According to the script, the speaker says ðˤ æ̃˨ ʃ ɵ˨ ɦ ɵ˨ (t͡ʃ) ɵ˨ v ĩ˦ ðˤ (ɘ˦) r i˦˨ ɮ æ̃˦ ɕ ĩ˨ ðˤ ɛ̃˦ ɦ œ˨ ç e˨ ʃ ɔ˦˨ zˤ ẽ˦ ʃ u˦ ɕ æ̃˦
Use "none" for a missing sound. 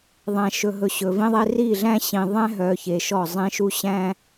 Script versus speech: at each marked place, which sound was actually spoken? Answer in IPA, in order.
ɕ, e˦

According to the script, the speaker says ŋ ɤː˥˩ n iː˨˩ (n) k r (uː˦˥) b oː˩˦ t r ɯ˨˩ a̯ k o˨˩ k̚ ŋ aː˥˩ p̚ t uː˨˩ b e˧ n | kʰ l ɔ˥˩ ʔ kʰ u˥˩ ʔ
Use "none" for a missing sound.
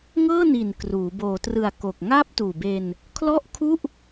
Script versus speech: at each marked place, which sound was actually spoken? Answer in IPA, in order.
n, uː˩˦

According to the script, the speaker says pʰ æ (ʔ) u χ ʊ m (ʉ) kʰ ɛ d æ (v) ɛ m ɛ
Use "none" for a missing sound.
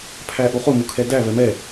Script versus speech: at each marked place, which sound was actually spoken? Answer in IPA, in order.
ʔ, u, v

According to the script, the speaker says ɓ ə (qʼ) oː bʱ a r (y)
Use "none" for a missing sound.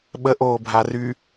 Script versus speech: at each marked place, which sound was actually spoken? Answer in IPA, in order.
ʔ, y

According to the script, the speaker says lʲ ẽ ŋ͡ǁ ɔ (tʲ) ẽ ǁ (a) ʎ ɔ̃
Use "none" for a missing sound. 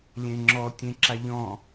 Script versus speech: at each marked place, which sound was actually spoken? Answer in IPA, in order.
tʲ, a

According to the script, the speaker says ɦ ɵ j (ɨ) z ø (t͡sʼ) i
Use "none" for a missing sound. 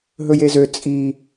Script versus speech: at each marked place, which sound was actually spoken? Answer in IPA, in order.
e, t͡sʼ

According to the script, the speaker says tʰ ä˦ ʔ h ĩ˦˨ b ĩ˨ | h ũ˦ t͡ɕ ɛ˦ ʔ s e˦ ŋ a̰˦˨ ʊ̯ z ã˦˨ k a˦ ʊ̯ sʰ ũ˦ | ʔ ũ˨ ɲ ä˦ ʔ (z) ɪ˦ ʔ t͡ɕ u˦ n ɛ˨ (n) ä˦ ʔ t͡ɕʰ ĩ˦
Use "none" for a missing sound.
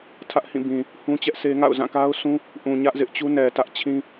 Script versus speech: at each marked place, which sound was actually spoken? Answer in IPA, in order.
z, t

